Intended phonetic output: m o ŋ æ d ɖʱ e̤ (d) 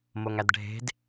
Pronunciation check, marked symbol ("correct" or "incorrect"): correct